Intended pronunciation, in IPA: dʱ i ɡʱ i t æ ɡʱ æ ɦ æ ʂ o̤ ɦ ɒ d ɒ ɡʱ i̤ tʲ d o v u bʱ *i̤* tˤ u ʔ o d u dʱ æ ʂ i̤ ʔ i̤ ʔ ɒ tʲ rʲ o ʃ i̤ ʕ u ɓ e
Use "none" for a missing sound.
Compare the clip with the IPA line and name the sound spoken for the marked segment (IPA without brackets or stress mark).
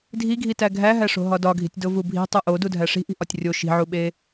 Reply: i̤